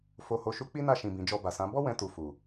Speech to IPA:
f o˨ h o˨ ʃ u˨˦ k͡p i˦ n a˦˨ ʃ ĩ˨ b ĩ˨ d͡ʒ ɔ˧ b a˨ s ã˨˦ b ɔ˦ w ɛ̃˧ t u˨ f u˨

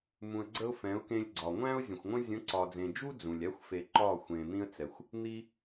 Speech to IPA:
m ũ˨ ə̯ ɡ͡ǀ ə˧ ʊ̯ f ɛ̃˨˦ ʊ̯ k ẽ˧ lʲ ɡ͡ǀ ɒ˨ ŋʷ æ̃˦ ʊ̯ zʲ ə̃˨ xʷ ŋʷ ə̃˦ zʲ ə̃˨˦ ǀ ɒ˨ d͡z ẽ˨ d͡ʒ u˦ d͡z ũ˨ lʲ æ˦ xʷ f e˨ ǃ ɒ˦˨ xʷ ẽ˨ n̪ ĩ˦ ə̯ t͡s ɛ˨ xʷ | n̪ i˧

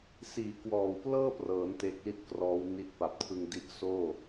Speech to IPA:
s iː˨˩ k w ɔː˨˩ w p l ɤː˥˩ p r ɤː˩˦ n t e˦˥ k̚ l i˥˩ t̚ k r ɔː˦˥ w n i˥˩ t̚ p a˨˩ p̚ tʰ ɯ˧ ŋ d i˦˥ ʔ s oː˥˩

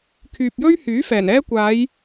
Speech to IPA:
kʰ yː˨ p̚ j ɵ˥ ɥ h yː˨˥ f ɛː˨˩ n ɛː˧ kʷ aː˨˧ j

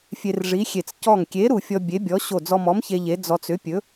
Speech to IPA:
fʲ e˧ r ʐ i˨˥ xʲ e˧˩ t͡s c ɔ˧˩ ŋ kʲ e˨˥ ɾ u˧˩ fʲ ɔ˧ bʲ e˨˥ bʲ ɔ˨˥ ɕ o˧˩ d͡z ɔ˧ m ɔ˨˥ m ç e˧ ʎ e˨˥ d͡z ɔ˧ t͡s ʏ˨˥ pʲ ɵ˨˥

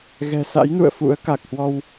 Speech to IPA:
ɣ ɛ̤˨˩ s a̰˧˥ j n ṵ˧˨ ə̯ f ṵ˧˥ ə̯ k a˨˩ k̚ h w ɔ˧ w

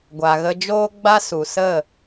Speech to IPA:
ɡʷ a˨ ɣ ə˧ d͡ʒ oː˦ ɡ͡b a˦ s u˨ s ə˦˨

